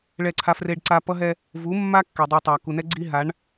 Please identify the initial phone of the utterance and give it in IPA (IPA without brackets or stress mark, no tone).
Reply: ɭ